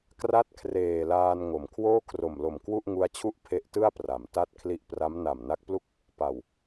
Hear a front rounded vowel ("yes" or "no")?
no